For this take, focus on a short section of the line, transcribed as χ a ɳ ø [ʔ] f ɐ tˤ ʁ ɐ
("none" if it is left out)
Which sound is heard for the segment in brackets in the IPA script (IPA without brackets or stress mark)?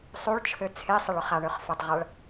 χ